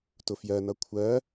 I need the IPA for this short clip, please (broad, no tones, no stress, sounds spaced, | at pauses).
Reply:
t ʊ f j ɜ n ʌ kʷʰ ɜ